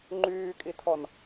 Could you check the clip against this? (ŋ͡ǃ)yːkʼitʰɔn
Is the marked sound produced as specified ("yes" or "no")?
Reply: yes